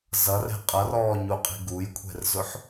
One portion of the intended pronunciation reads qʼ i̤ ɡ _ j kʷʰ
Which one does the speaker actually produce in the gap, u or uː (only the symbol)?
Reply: u